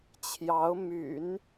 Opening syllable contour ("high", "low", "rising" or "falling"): rising